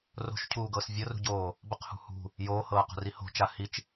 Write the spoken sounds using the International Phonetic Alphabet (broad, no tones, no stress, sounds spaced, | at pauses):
r o̤ ʃ cʰ uː ɡ ɤː s vʲ ɤ r ṳ ɟ oː | b ə q h ṳ h ṳ | j oː h ɤː q o̤ r i h o̤ t͡ʃ a h i t͡ʃ